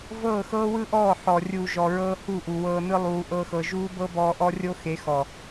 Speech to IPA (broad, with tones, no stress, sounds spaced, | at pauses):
v ɤː˦˨ x ɤː˦ w ɯ˦ ʔ ɔː˦˨ ħ ɔ˨ rʲ uː˨ ʒ ɔ˨ ɹ ɤː˧ h u˦˨ ʔ u˨ w ɤː˧ n ɯ˦ lˠ uː˧ ʔ ɤ˦ x ɤ˧ ʒ uː˦ b ɤ˦ b ɔː˧ ʔ ɔ˦ rʲ o˦ x e˨˦ x ɔ˨